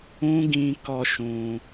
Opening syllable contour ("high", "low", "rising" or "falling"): high